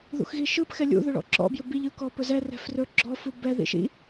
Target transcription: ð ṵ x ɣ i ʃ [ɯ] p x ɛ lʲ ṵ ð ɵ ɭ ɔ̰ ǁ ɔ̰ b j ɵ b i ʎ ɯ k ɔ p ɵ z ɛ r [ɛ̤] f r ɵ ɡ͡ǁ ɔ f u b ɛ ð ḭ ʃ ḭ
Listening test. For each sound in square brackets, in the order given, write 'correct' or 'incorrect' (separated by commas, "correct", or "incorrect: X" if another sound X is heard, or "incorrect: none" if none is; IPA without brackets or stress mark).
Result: correct, correct